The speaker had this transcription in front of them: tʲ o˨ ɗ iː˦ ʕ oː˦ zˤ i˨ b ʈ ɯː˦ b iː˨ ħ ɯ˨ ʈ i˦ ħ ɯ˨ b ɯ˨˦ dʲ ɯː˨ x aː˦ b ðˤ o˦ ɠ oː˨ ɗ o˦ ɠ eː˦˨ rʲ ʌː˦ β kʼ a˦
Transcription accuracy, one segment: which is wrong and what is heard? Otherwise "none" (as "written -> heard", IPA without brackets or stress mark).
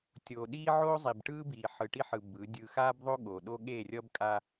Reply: β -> b